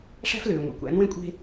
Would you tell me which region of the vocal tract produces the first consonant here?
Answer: retroflex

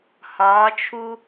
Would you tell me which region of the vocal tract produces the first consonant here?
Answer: throat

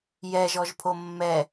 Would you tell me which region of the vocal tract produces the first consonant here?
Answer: palate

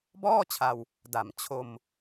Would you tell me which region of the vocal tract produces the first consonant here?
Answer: lips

